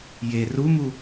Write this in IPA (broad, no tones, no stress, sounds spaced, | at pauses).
j e r u m u